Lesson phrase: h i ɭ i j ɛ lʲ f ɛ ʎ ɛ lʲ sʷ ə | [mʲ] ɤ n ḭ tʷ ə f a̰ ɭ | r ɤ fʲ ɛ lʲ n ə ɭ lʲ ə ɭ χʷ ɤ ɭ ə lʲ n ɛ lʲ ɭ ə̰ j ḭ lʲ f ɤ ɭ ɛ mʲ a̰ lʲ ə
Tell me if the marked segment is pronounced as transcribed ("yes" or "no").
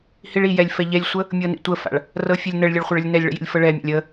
yes